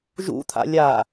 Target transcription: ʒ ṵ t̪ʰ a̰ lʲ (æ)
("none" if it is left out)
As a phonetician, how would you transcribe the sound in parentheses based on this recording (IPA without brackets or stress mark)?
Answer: a